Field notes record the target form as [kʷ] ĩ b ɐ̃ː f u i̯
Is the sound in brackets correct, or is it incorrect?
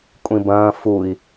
incorrect: kʷʼ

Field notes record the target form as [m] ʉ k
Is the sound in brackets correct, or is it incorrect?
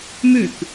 correct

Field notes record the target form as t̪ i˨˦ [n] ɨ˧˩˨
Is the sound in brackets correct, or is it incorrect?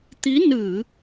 correct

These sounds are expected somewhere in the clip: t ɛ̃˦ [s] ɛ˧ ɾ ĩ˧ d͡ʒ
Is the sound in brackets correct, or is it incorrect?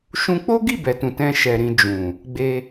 incorrect: ʃ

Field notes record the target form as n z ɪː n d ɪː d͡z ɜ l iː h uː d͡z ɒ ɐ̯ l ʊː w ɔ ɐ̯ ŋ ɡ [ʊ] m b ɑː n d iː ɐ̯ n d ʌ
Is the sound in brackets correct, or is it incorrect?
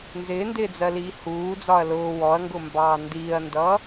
correct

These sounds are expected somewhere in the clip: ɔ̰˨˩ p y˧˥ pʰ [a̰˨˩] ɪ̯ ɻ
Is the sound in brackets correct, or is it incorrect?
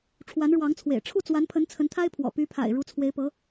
correct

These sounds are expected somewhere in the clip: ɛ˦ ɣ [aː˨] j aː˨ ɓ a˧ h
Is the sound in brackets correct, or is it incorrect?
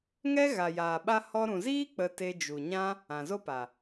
incorrect: a˨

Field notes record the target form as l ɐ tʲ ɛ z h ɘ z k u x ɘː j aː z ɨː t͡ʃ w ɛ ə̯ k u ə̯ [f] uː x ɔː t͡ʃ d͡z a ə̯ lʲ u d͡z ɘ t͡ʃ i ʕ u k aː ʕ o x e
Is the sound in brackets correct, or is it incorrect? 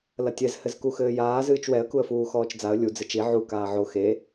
correct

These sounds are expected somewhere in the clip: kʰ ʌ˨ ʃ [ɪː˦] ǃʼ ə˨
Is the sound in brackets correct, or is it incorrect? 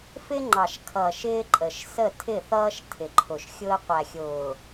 correct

